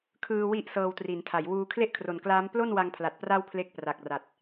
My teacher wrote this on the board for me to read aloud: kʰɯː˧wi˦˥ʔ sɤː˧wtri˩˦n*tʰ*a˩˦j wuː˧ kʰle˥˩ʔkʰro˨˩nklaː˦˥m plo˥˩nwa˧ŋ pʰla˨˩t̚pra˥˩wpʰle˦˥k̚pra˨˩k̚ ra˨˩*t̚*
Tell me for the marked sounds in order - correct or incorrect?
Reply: correct, correct

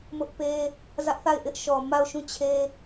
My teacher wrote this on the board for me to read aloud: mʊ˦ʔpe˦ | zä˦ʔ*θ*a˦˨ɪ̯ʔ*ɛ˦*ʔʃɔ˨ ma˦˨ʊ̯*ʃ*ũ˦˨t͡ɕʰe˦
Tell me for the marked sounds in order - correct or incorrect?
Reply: correct, incorrect, correct

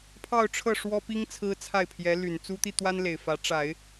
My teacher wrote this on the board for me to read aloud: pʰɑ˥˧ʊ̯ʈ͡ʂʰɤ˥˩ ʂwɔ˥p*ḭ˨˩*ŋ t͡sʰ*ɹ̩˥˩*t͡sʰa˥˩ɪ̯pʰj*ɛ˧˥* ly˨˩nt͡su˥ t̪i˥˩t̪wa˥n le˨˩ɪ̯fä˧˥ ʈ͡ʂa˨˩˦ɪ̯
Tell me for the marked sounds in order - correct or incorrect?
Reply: incorrect, incorrect, correct

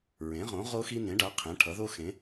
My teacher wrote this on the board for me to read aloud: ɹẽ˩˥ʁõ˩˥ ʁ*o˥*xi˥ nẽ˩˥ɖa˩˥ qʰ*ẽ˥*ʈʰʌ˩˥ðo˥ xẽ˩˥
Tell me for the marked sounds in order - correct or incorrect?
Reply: correct, incorrect

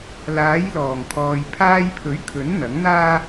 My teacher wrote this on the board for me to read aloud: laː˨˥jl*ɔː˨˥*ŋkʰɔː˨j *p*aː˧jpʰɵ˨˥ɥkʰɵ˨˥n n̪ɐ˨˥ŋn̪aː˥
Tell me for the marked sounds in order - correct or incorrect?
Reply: incorrect, incorrect

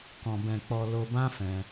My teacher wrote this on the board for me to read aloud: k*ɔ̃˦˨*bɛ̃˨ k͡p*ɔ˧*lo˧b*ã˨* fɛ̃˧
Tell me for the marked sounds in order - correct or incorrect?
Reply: incorrect, correct, incorrect

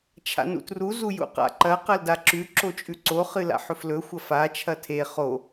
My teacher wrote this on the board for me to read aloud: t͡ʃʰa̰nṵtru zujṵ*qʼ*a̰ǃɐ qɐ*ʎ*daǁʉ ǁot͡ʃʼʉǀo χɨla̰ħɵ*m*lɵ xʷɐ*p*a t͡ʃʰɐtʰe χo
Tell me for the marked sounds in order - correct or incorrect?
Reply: incorrect, incorrect, incorrect, incorrect

